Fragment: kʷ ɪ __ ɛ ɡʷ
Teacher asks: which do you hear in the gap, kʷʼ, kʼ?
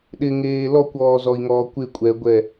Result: kʷʼ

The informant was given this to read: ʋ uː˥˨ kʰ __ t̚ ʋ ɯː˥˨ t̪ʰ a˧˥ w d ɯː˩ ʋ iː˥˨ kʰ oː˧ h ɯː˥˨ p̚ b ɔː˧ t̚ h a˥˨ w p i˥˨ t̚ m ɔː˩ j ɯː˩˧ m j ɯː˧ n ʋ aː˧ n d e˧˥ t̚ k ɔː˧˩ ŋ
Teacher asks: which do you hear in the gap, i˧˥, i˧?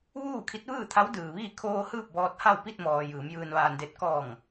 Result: i˧˥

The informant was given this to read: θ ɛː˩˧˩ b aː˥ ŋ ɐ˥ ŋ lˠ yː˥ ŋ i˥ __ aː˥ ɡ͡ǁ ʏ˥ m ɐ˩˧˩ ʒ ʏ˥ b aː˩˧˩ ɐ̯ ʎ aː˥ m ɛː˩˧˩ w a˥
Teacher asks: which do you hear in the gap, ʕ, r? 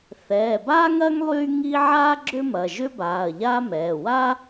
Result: ʕ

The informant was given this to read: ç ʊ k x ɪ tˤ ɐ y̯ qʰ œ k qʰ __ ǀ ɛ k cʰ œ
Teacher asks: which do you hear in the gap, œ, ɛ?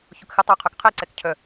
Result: ɛ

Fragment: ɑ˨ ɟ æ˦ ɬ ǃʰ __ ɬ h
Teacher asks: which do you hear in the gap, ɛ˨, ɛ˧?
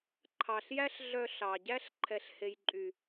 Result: ɛ˨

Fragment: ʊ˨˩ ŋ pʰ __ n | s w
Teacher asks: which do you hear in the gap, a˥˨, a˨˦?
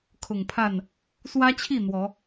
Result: a˥˨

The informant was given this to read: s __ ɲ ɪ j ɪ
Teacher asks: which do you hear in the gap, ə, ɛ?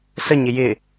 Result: ə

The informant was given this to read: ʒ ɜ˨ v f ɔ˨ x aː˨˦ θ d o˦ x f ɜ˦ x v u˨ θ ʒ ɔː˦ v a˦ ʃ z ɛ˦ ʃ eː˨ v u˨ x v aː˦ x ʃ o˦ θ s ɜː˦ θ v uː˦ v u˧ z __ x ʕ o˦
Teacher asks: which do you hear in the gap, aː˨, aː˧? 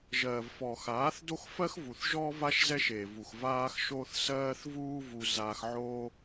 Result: aː˧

